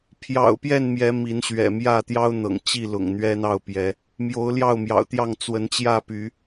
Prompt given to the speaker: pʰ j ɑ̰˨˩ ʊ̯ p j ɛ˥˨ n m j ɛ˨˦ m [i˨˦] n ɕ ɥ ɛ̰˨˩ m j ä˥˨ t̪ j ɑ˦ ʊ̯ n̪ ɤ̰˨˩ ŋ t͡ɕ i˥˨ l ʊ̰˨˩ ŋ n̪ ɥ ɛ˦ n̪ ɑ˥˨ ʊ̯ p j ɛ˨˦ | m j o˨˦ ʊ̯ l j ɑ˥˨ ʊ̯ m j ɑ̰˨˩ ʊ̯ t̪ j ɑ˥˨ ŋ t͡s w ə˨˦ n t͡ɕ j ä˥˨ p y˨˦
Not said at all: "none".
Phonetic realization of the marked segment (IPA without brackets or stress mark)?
i˨˦